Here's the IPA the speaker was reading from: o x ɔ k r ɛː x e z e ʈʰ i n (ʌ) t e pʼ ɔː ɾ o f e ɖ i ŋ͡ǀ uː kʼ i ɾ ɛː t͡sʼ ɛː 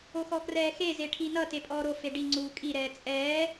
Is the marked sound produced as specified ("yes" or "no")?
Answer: yes